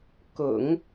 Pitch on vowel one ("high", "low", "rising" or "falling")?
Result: low